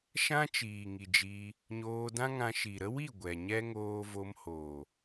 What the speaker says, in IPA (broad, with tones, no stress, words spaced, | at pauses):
ʃã˦t͡ʃiː˨ŋi˨d͡ʒiː˧ | ɲoː˧dã˦ŋã˧ʃi˨ ɾə˦wi˦˨ ɡʷɛ˨ɲɛ˦ ŋoː˧vo˧mhoː˨